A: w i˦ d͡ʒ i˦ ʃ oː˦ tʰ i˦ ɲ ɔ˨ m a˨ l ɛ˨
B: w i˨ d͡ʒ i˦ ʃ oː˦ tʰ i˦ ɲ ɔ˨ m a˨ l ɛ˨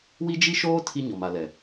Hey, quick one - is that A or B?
A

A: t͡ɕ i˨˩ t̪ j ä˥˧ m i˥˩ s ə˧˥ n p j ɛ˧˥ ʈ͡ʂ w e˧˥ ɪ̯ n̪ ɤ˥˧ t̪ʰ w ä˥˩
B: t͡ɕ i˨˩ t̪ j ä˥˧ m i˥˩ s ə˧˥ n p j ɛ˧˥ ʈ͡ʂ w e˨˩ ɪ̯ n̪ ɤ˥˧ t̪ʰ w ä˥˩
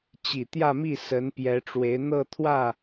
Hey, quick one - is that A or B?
A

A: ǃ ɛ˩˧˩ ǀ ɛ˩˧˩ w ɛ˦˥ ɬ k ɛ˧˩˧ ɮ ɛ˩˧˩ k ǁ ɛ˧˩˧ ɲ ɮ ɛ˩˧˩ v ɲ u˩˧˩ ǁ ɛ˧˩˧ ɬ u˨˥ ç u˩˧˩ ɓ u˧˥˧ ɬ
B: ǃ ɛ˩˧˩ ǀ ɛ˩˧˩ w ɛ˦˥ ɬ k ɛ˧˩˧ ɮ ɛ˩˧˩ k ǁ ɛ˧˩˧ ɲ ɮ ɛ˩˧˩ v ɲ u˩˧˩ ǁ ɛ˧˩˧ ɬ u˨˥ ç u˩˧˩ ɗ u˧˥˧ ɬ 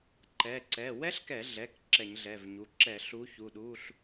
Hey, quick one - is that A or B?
B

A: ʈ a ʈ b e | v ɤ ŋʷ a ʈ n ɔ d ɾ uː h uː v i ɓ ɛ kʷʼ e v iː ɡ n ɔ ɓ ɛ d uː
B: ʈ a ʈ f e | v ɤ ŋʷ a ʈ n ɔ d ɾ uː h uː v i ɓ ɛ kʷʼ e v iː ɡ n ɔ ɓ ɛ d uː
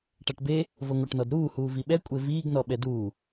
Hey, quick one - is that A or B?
A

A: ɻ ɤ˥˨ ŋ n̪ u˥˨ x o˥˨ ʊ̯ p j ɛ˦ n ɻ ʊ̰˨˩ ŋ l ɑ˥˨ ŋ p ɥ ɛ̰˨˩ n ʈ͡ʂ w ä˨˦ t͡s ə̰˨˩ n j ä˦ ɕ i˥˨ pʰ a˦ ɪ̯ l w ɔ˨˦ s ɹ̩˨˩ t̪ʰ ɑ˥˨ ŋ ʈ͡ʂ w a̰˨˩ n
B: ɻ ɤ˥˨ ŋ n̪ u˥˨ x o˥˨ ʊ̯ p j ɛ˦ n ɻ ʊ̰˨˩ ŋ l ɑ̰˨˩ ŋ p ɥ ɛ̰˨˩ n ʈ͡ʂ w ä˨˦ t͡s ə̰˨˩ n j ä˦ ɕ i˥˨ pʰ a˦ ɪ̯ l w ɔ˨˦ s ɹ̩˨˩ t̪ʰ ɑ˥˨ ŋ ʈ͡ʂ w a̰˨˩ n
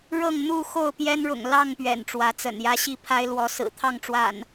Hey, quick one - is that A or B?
A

